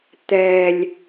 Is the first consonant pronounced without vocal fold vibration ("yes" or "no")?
yes